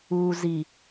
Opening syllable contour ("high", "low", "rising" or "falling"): low